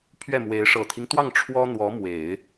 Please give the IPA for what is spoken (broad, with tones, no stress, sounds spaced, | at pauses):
pʰ ɥ ɛ˥˩ m w e˧˥ ɪ̯ ʂ ɤ˨˩ t̪ʰ i˦ ŋ t̪ w ɑ˥˩ ŋ ʈ͡ʂʰ w ɔ˥ n̪ w ɔ˧˥ m w e˨˩˦ ɪ̯